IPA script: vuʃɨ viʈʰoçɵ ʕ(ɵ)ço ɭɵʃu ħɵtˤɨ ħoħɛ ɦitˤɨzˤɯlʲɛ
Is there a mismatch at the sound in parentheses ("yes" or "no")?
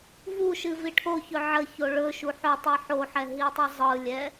yes